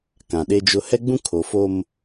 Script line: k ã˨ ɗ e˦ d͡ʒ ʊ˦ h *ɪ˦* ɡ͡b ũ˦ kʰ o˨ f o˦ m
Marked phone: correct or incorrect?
incorrect